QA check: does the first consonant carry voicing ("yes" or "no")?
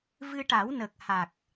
yes